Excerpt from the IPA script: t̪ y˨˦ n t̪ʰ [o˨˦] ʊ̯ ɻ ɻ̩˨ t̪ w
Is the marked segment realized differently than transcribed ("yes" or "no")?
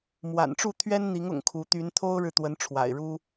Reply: yes